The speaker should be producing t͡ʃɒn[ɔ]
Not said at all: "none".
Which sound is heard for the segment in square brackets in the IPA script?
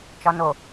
o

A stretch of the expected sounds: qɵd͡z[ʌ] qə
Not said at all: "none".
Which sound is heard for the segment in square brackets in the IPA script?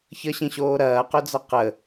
ʌ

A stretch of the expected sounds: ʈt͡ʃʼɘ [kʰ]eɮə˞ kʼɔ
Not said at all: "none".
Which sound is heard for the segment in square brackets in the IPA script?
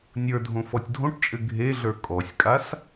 ɡʱ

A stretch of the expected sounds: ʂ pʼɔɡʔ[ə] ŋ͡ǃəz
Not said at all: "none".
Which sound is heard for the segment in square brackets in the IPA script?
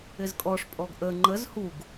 ə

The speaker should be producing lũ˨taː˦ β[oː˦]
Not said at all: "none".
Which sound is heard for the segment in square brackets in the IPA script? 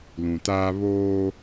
oː˦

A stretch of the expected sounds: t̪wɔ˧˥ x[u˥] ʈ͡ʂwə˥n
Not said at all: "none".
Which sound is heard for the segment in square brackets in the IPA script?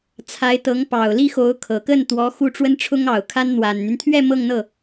u˥˩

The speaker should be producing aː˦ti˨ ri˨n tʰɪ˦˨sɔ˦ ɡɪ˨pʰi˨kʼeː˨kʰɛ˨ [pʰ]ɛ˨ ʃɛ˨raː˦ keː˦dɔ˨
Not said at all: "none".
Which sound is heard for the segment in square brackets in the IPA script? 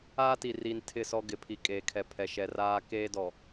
pʰ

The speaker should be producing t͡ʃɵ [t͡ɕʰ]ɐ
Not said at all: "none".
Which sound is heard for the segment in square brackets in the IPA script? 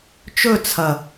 t͡sʰ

